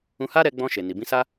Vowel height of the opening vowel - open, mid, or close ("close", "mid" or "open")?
close